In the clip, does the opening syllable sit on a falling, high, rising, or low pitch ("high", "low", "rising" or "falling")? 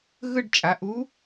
falling